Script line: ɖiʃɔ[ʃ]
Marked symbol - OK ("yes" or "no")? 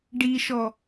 no